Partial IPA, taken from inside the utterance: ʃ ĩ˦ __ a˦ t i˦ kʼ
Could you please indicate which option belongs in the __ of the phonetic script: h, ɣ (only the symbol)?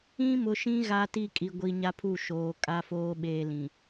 ɣ